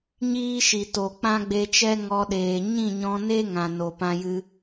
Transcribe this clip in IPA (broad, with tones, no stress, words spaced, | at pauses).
ɲiː˦ʃi˨to˨ k͡pã˦ɡ͡be˧t͡ʃɛ˦ ŋɔ˧ɗeː˨ ɲĩ˦˨ɲɔ̃˧ne˦ ŋã˨no˨pã˧jɨ˧